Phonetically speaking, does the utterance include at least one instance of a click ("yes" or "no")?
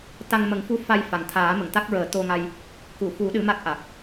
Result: no